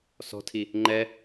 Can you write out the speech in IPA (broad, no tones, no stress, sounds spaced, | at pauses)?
s ɔ̤ tʰ i | ŋ͡ǃ ɛ